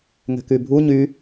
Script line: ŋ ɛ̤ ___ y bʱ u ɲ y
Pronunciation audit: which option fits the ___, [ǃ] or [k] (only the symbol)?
k